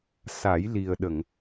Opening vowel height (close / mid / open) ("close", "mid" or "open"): open